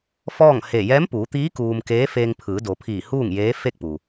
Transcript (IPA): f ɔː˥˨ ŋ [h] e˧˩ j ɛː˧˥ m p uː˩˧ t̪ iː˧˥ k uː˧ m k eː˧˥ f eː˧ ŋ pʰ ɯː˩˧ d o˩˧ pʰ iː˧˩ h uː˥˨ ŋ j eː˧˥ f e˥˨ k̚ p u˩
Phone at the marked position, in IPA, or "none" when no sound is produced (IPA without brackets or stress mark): h